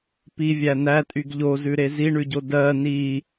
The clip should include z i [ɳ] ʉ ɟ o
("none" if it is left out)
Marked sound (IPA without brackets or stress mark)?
ɳ